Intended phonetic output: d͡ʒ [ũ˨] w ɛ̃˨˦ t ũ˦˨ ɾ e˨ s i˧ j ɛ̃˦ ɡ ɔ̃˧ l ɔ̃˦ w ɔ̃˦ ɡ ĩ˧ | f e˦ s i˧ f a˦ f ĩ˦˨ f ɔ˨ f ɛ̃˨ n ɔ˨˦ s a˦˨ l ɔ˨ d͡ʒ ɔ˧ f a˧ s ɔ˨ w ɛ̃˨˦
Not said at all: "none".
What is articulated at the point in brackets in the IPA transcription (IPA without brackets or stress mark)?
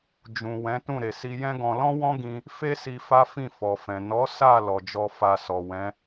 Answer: ũ˨